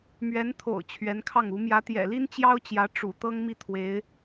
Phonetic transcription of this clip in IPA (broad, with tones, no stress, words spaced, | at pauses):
mɥɛ˧˥nt̪ʰo̰˨˩ʊ̯ t͡ɕʰɥɛ˧˥nkʰɑ˥˩ŋu˧˥ mjä˧˥t̪jɛ̰˨˩li˥n t͡ɕjɑ˥ʊ̯t͡ɕjä˧˥ ʈ͡ʂṵ˨˩ t̪ɤ˥ŋmi˥˩t̪ʰwe˧˥ɪ̯